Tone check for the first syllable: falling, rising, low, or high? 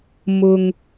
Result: low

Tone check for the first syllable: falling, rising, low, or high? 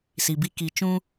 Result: low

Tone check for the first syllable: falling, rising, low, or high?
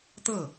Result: falling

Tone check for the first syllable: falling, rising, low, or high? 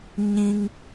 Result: high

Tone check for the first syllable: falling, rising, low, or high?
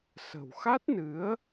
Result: low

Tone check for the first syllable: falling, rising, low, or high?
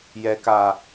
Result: low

